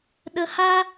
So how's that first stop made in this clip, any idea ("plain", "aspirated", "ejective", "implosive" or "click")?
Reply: implosive